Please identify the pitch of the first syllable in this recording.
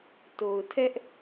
low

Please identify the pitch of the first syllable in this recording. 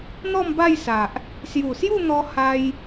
falling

